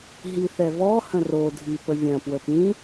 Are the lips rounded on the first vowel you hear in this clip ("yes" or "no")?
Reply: no